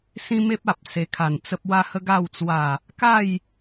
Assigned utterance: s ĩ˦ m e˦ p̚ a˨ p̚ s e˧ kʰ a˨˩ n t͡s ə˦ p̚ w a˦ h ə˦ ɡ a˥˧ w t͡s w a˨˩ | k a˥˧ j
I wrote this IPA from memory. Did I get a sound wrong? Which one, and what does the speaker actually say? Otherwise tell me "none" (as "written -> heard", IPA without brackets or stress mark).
none